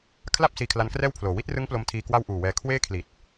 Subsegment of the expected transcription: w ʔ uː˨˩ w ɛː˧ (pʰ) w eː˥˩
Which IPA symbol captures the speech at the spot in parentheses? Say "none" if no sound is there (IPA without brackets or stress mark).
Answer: kʰ